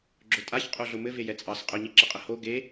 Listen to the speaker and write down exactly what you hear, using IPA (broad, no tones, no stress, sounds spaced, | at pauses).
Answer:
ɡ͡ǁ ʊ tʼ a ç qʼ o ɮ ʊ m ɘ v e j ɛ t͡sʼ ɑ s qʼ ʊ ɲ i ǁ ə qʼ ə h o ɡ e